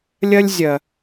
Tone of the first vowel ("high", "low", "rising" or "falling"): high